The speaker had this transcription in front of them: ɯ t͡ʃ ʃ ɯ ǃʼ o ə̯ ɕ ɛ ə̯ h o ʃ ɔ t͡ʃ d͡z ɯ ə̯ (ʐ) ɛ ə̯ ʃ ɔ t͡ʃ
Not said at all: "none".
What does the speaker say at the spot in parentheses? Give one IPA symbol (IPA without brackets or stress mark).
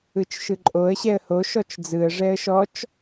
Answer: ʐ